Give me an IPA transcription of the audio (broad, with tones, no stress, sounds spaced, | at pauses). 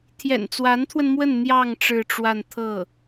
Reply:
t̪ʰ j ɛ̰˨˩ n t͡s w a˧˥ n t̪ʰ w ə˧ n m w ə˥˧ n n̪ j ɑ˥˧ ŋ ʈ͡ʂ ɻ̩˥˧ ʈ͡ʂ w a˥˧ n t̪ʰ ɤ˥˩